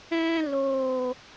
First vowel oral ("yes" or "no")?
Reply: no